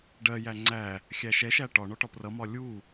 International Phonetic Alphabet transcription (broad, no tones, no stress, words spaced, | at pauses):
ɖɜjæ ŋ͡ǀæ | xʲæʃɛʃæ ʈɒ ɳɔʈɒprʌmɒ lʲu